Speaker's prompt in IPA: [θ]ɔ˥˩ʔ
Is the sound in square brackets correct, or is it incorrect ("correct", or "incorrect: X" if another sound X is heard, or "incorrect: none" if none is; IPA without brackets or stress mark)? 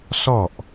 incorrect: s